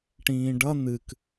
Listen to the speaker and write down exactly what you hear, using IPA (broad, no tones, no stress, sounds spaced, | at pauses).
ʈ ĩː ɖ ʌ n̪ ɨ k